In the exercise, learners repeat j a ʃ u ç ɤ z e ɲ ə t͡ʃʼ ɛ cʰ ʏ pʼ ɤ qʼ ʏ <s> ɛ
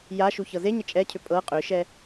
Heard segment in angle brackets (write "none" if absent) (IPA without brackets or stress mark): ʃ